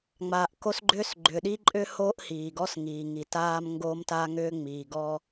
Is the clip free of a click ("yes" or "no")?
no